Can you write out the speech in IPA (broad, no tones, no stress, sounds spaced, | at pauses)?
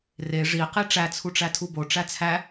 r e ʐ i q i ʈ͡ʂ æ t͡sʰ u ʈ͡ʂ æ tʰ u b o ʈ͡ʂ æ t͡sʰ æ